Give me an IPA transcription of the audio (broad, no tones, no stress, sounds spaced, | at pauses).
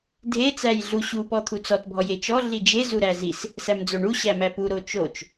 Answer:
dʱ e t͡s æ j ɮ u ɕ u p ɔ t̪ʰ u t͡s ɔ t bʱ ɔ j e t͡ʃ ɔ ɮ i d͡ʒ e z u ɾ æ z i s | s æ m d͡z o ɳ u ɕ æ m æ p u ɾ o t͡ʃ o t͡ʃ